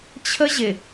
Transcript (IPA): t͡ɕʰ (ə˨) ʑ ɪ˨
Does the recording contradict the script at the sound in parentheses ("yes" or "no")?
yes